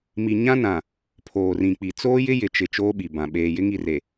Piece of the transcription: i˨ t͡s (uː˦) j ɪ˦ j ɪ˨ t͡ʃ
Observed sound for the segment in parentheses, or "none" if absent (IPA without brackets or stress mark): oː˦